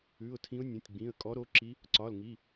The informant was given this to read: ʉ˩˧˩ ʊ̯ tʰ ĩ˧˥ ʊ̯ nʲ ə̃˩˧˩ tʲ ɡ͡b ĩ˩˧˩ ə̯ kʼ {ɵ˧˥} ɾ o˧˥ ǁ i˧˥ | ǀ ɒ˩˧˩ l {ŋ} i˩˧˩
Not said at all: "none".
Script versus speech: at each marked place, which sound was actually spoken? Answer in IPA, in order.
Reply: ɔ˧˥, ŋ

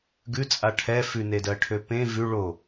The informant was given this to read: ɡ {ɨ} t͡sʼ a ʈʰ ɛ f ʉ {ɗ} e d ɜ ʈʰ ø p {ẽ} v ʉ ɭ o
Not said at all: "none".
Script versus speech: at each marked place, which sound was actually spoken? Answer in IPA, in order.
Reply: ʉ, n, ẽ

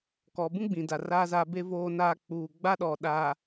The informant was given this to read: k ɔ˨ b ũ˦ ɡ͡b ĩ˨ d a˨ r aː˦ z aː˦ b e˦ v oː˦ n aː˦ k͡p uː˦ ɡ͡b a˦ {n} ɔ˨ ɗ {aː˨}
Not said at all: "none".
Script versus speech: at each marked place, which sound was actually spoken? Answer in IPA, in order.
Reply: ɗ, aː˨

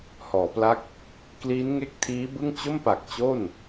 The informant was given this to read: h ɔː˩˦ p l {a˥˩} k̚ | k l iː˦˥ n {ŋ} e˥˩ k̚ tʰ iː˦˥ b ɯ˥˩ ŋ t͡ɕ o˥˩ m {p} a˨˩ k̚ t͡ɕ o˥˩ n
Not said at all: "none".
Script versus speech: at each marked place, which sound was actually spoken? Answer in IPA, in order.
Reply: a˥˩, ŋ, p

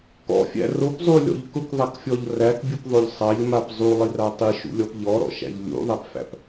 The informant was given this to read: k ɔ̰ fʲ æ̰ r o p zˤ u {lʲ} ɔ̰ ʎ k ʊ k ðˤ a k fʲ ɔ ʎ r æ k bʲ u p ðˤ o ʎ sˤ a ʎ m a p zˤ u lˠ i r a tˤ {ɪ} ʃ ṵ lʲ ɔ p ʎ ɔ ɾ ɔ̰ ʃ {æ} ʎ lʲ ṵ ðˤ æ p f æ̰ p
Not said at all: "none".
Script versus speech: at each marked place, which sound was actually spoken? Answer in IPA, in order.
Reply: lʲ, i, æ̰

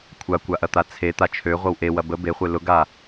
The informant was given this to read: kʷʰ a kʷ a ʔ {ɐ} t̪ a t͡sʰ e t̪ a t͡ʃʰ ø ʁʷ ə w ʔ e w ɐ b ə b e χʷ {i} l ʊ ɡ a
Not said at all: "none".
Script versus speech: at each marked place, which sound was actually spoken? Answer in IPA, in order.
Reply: ɐ, e

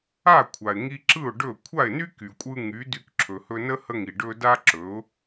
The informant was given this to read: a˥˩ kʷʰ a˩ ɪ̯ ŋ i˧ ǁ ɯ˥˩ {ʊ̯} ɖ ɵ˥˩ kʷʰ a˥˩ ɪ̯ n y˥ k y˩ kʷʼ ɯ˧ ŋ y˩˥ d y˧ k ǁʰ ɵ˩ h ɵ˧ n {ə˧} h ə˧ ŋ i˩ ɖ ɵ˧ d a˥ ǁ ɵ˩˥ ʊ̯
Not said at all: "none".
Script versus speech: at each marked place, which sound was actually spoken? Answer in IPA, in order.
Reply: ʊ̯, ə˥

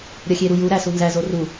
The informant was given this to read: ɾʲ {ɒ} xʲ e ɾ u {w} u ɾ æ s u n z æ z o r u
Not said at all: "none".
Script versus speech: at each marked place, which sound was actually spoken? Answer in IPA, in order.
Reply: ɒ, j

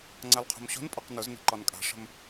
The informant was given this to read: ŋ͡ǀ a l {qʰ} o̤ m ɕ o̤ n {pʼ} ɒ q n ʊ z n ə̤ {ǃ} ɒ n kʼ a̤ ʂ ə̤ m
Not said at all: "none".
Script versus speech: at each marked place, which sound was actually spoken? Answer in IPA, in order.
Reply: qʰ, pʼ, ǃ

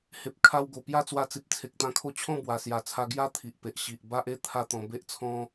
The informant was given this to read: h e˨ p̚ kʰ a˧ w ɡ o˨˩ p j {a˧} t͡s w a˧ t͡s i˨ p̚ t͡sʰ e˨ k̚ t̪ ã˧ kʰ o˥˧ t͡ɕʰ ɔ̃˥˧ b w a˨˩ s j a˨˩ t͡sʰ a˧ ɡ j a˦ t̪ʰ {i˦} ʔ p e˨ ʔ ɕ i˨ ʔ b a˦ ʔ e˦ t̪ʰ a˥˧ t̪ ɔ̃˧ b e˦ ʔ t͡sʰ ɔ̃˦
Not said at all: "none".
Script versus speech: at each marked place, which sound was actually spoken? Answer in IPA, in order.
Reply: a˥˧, i˨

